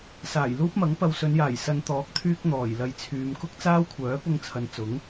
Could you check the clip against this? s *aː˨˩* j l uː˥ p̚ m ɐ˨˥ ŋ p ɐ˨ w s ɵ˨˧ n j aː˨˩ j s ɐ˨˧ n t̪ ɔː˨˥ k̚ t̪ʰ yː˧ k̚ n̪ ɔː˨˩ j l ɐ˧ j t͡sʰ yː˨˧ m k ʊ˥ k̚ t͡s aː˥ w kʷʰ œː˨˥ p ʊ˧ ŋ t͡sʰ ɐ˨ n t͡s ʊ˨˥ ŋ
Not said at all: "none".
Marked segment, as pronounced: aː˨˩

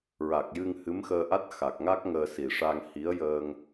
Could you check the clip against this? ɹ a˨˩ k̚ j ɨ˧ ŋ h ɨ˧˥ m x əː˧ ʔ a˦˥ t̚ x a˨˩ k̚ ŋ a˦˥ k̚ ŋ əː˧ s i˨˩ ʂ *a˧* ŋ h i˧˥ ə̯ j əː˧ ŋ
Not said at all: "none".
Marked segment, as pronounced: a˧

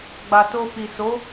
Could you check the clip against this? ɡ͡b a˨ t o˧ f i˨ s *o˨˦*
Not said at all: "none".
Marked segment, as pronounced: o˨˦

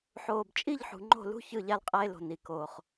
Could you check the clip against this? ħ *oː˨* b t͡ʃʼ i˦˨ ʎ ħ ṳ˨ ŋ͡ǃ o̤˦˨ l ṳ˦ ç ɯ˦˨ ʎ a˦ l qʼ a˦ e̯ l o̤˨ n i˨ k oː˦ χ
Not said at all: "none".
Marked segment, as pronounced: oː˨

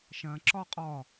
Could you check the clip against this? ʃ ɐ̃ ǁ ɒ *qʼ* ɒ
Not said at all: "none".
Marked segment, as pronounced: qʼ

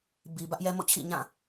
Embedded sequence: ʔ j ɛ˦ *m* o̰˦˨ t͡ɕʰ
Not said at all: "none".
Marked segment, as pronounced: m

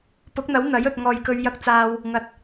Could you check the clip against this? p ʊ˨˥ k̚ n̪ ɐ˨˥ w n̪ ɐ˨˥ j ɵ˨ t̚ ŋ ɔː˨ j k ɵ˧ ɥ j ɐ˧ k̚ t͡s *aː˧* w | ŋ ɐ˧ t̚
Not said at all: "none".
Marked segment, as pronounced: aː˧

